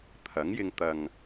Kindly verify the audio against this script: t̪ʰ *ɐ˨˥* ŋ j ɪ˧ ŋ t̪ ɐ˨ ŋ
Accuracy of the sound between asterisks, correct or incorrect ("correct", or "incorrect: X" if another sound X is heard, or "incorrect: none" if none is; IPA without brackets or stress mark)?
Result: correct